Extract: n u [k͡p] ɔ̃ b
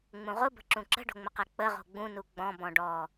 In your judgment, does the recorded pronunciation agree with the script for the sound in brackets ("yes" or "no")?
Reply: no